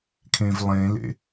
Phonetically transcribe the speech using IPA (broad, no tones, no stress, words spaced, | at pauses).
kʰẽvlˠẽlḛ